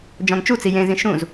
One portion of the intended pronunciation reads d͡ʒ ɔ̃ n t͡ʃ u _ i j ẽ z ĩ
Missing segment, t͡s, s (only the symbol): t͡s